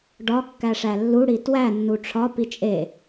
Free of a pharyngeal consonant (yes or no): yes